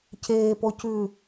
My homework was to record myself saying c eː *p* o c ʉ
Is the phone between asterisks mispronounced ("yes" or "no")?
no